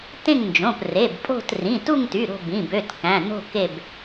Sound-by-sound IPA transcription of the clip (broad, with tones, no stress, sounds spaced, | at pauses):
t ẽ˦˨ ŋ n d͡ʒ õ˩˧˩ p r e˩˧˩ b pʼ o̤˦˨ t r ĩ˩˧˩ t u˦˨ ŋ t y˩˧˩ ɾ o̤˦˨ b ĩ˩˧˩ b ø˩˧˩ t k æ̃˩˧˩ n o̤˦˨ k e˦˨ b